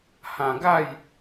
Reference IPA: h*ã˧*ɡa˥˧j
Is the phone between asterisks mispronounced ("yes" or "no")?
no